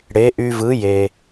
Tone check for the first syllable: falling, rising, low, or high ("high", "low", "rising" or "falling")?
rising